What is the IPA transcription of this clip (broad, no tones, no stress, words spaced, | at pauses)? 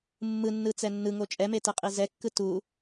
mːɯnːɯ t͡sɛnːɯŋo t͡ʃʼɛme tɛqʼizɛkːɯ tu